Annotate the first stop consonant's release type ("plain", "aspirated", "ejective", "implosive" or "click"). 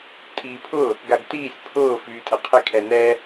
ejective